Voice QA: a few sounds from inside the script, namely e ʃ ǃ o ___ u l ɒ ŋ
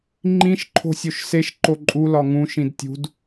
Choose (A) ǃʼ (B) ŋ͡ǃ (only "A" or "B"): A